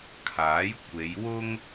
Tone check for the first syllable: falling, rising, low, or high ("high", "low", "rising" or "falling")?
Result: rising